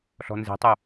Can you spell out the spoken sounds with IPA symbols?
ɬ ɔ̤ n z e̤ tˤ u

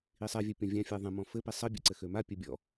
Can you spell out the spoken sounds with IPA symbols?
i sˤ ɛ vʲ ɘ pʲ ɔ̃ vʲ ã fʲ a ðˤ ɛ̃ m ɔ̃ f ɘ p i sˤ ɘ bʲ ɛ̰ ǀ ɘ x ø m a pʲ ɘ bʲ ɔ̰

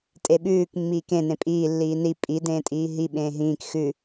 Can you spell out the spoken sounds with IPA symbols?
tʼ e ɓ ʉː k mː iː k ẽ n ẽ pʼ iː lː iː n i pʼ i d ẽː tʼ iː ɦ i ɓ ẽː ɦ ĩː k x ʉ

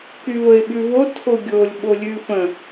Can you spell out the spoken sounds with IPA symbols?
k y v ə ɪ̯ ɓ ʉ v o tʰ o ɡʲ o lʲ ɓ o lʲ ʉ f ə̃

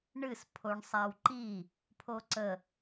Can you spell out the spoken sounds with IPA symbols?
ɳ ɨ s pʰ o ɳ sˤ a w ǃ i | pʰ o ǀ ə

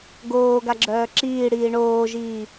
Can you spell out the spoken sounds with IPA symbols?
ɡ oː ɡ a ɡ͡ǁ œː ǁ iː ɽ iː ɳ oː ʒ iː

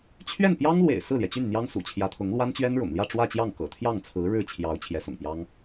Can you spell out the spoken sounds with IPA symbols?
t͡ɕʰ ɥ ɛ˥˩ n p j ɑ˥ ŋ l w ḛ˨˩ ɪ̯ s ɹ̩˥˩ l j ɛ˩ t͡ɕ y˥˩ n n̪ j ɑ˥ ŋ s ṵ˨˩ t͡ɕʰ j ä˧˥ t̪ʰ ʊ˧˥ ŋ l w a˥ n t͡ɕ ɥ ɛ˥ n ɻ ʊ̰˨˩ ŋ l j ä˥˧ ʈ͡ʂ w ä˥˧ t͡ɕ j ɑ˥˩ ŋ k ɤ̰˨˩ t̪ʰ j ɑ˥˩ ŋ t͡sʰ ɹ̩˧˥ ɻ ɻ̩˥˩ t͡ɕʰ j ɑ˧˥ ʊ̯ t͡ɕʰ j ɛ˧˥ s ʊ̰˨˩ ŋ p j ɑ˥ ŋ

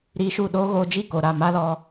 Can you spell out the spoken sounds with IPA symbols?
ɾ iː˧ ʃ u˦˨ ɗ oː˦ ɣ oː˧ d͡ʒ i˦˨ k o˨ ɾ a˦˨ m a˦ l ɔ˧

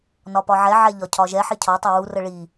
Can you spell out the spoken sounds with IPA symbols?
n ɒ p ɒ ʕ ɛ ʕ ɛ ʎ ɒ cʰ ɒ ʒ ɛ ħ i cʰ ɒ tˤ ɛ w u r ə ɭ i

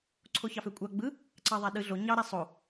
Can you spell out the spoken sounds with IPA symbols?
ǀʰ o ç ɑ f ø kʷʼ ɑ ɡ͡b ɯ | ǀ ɑ ðˤ æ ɗ ɯ ɮ o ɲ ɑ ɾ æ sˤ o

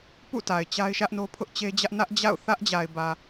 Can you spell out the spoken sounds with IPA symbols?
p ṵ˦˨ t a˨ ɪ̯ t͡ɕ a˦ ɪ̯ ʃ ä˦ ʔ n o˦ pʰ ʊ˦ ʔ t͡ɕ e˦ d͡ʑ ä˦ ʔ n ä˦ ʔ d͡ʑ a̰˦˨ ʊ̯ θ ä˦ ʔ d͡ʑ a˨ ɪ̯ b ä˨

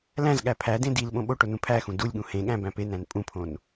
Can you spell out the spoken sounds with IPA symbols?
l æ̃ z ɠ æ pʰ æ d ẽ d i l ɓ õ ɓ o ʈ o n ũ pʰ æ x ũ d u lʲ ɠ ũ h ẽ ɠ æ̃ b æ̃ p e n æ̃ n pʼ ũ pʰ õ n

